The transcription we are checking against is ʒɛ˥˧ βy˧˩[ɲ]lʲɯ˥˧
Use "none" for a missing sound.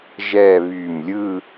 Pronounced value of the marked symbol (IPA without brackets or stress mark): m